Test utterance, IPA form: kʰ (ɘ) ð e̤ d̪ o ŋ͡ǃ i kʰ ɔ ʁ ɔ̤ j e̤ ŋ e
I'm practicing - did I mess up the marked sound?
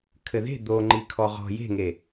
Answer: no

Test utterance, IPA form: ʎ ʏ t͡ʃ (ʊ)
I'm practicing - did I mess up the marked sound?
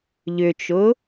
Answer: no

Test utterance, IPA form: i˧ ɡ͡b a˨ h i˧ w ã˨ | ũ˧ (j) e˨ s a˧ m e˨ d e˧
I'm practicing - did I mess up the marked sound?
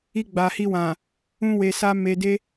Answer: yes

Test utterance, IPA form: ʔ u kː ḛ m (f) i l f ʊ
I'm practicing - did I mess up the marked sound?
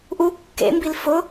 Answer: yes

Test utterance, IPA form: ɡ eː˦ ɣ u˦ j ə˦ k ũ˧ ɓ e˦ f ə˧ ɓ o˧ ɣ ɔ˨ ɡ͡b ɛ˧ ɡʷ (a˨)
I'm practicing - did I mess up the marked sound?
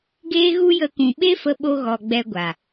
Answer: no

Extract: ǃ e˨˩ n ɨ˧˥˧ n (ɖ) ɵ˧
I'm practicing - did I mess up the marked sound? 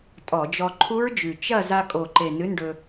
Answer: no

